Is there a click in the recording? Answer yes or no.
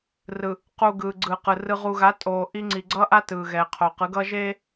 yes